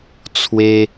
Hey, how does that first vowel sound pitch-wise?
high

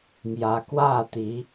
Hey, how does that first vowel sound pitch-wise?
rising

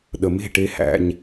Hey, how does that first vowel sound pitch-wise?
low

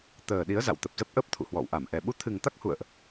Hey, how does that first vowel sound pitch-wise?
low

